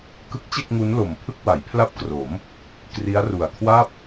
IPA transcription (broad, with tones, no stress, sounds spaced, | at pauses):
k ɯ˦˥ k̚ t͡ɕ e˥˩ k̚ ŋ u˦˥ n l o˨˩ m pʰ ɯ˥˩ k̚ w a˩˦ j pʰ l a˥˩ p̚ k r o˩˦ m | k r i˦˥ a̯ r u˨˩ a̯ kʰ w a˥˩ p̚